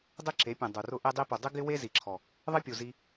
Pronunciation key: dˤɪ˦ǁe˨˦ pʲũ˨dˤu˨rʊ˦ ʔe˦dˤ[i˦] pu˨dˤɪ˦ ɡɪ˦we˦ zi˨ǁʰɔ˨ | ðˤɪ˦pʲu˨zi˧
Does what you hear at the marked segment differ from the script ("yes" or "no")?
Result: no